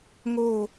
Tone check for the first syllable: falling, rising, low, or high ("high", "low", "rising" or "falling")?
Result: falling